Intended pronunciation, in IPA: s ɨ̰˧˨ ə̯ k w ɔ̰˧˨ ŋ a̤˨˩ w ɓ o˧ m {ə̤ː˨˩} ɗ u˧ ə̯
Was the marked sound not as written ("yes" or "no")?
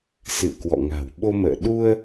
yes